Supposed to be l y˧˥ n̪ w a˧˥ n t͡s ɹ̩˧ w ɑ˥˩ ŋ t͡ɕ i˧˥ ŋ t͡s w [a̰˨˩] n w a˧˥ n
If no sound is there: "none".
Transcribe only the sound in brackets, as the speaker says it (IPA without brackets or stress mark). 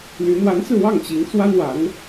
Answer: a˥